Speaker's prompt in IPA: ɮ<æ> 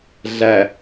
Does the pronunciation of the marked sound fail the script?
no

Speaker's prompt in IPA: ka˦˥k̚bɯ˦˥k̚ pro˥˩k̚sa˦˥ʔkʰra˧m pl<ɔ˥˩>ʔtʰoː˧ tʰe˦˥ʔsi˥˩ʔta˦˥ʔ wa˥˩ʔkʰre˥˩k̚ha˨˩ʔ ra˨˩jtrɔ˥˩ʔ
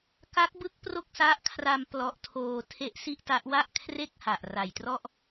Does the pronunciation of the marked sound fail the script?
yes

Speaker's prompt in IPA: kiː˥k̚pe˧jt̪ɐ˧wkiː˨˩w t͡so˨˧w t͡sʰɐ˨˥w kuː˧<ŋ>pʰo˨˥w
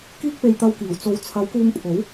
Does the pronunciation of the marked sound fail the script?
no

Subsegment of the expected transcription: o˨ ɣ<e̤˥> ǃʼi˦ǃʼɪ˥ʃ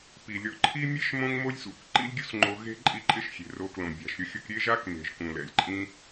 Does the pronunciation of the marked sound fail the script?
no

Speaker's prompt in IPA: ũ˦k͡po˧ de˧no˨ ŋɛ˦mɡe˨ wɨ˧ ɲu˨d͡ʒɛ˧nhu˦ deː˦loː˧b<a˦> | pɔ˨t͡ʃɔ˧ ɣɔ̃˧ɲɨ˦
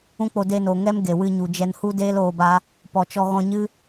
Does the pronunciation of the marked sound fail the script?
no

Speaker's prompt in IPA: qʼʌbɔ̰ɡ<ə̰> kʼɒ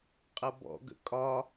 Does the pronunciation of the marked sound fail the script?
no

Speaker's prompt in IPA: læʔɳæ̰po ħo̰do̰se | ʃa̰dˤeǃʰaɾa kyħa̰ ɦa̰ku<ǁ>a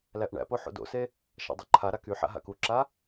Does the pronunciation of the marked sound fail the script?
no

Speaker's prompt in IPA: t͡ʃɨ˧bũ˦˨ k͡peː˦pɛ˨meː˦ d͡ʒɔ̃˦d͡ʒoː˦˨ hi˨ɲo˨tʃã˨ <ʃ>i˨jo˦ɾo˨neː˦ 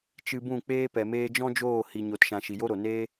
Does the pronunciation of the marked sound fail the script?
no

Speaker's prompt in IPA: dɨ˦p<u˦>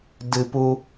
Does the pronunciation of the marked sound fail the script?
no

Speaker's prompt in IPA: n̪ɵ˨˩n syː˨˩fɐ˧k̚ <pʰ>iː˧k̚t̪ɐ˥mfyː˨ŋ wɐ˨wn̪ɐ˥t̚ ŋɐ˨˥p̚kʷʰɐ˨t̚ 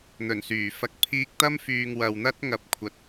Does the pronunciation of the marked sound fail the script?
no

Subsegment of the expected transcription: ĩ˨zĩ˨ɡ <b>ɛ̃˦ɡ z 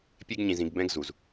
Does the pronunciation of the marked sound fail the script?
no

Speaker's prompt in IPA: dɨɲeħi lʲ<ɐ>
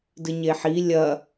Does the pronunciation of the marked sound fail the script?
no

